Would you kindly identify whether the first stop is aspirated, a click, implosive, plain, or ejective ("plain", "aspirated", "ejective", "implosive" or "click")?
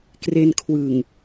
plain